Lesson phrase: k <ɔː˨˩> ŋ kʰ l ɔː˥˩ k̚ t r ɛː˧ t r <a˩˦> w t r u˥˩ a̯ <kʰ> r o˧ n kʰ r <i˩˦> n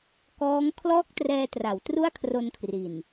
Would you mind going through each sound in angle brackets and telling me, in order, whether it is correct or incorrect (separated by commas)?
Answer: incorrect, correct, correct, incorrect